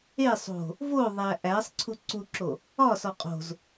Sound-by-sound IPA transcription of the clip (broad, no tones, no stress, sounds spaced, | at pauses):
e sˤ o̤ | v o ðˤ æ ʔ æ sˤ ǀʰ u ǀ u ǁ o | ɒ s ɒ qʼ o̤ z